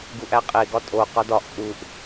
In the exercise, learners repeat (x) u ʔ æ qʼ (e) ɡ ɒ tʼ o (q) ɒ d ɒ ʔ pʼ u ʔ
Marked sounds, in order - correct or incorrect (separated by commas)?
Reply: incorrect, correct, correct